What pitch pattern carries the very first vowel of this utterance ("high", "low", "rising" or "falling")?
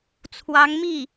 rising